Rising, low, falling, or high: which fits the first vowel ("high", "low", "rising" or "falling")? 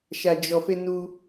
low